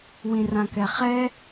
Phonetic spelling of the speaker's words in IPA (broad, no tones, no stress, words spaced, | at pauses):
wĩrãkɛχɛ